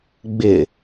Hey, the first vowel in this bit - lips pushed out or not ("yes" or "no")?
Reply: no